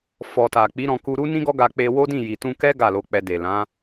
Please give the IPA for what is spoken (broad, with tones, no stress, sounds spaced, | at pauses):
f ɔ˨ t a˨ k͡p i˨˦ ɾ ɔ̃˧ k u˧ ɾ u˦ n ĩ˦ ɡ ɔ˦ ɡ a˧ k͡p e˧ w o˦ d ĩ˦˨ j i˨ t ũ˧ k ɛ˦ ɡ a˦˨ l o˧ k͡p ɛ˧ d e˨ l ã˨˦